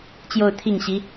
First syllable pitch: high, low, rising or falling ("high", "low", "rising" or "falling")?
falling